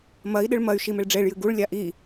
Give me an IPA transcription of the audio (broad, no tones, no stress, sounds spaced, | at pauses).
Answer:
m ɐ i̯ ɗ ɨ ɭ m ɐ y̯ ʃ i m e ɭ ɖ͡ʐ e ɭ j ɨ ɡ u ɭ lʲ a ʔ i